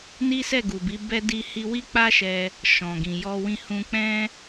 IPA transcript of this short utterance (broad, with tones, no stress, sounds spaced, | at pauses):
n i˦ s ɛ˦˨ ɡ u˨ b i˨˦ b ɛ˧ d i˧ h i˧ w i˦ k͡p a˦ ʃ ɛ˧ | ʃ ɔ̃˨ ɡ ĩ˨ j ɔ˧ w ĩ˧ h ũ˧ k͡p ɛ̃˦